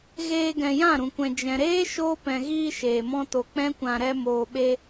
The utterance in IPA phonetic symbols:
ɣ eː˧ ɡ ɛ̃˨ j ã˦˨ ɾ ũ˨ kʷ ɛ̃˨ d͡ʒ ɛ̃˨ ɾ eː˦ ʃ oː˧ p ɛ̃˨ ɣ iː˧ ʃ eː˨ m ɔ̃˦ t o˧ k͡p ɛ̃˦ kʷ ã˧ ɾ ɛ˧ m oː˨ ɓ e˧

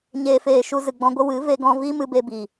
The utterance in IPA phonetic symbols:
ɲ eː˨ f eː˨ ʃ u˧ z ɨ˨ ɡ͡b ɔ̃˧ ɡʷ ə˦ w ɨ˨˦ v e˧ ɡ ɔ̃˧ v i˦ m ɨ˧ b e˧ b i˨

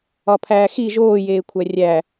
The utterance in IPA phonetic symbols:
ɒ pʰ æː x i ʒ oː j eː kʷʰ æ rʲ æ

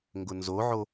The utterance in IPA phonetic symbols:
ŋ ɡ ʊ n z o ʕ o

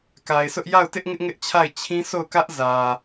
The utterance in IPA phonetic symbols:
k a˨ ɪ̯ sʰ ʊ˦ ʔ j a˦˨ ʊ̯ t ɪ˦ ʔ ŋ ɪ˦ ʔ ŋ ɪ˦ ʔ t͡ɕʰ a˦˨ ɪ̯ t͡ɕʰ ĩ˦ s o˦˨ ʊ̯ k ä˦ ʔ z ä˨

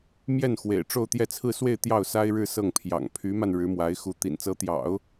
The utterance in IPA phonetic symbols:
m j ɛ˥˩ n x w ḛ˨˩ ɪ̯ ʈ͡ʂ o˥˧ ʊ̯ t̪ j ɛ˥˧ t͡sʰ ɹ̩˥˧ s w e˥˧ ɪ̯ t̪ j ɑ˥˩ ʊ̯ s a˥ ɪ̯ ɻ ɻ̩˥˧ s ɤ˥˩ ŋ pʰ j ɑ̰˨˩ ŋ pʰ y˧˥ m a˧ n ɻ ɻ̩˧˥ m w a˧˥ ɪ̯ x u˧˥ t̪ ḭ˨˩ n t͡s ɤ˧˥ t̪ j ɑ̰˨˩˦ ʊ̯

